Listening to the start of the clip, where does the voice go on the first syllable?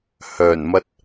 low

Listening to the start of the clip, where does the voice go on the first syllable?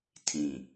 low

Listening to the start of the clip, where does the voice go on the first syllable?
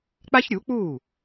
high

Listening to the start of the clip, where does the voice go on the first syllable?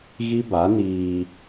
high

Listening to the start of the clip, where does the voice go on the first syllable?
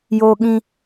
high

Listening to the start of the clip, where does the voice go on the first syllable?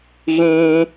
high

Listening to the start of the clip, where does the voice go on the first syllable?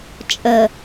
low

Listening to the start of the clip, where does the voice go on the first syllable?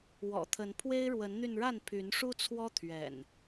low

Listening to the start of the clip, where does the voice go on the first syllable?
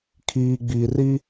low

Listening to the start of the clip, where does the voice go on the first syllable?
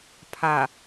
low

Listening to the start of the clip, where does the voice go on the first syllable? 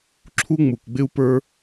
high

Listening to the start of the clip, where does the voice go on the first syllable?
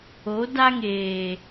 rising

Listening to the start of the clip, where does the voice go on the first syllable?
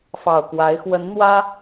low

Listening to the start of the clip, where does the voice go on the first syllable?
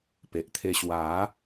low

